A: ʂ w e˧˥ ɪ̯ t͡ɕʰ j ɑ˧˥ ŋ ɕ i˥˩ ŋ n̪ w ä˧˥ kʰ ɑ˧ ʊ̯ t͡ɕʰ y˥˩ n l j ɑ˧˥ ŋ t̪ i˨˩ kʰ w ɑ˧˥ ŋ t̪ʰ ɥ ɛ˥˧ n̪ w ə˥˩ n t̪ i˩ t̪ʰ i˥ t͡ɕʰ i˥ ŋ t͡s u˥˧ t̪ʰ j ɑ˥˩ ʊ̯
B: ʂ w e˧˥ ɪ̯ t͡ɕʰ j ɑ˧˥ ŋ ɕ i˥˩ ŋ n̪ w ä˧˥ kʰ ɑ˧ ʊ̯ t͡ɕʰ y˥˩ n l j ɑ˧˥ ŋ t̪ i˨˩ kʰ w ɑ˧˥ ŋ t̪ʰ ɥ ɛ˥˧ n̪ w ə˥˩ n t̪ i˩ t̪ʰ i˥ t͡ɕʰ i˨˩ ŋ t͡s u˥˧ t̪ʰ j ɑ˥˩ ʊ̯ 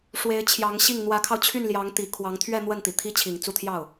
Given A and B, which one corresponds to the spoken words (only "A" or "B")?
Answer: B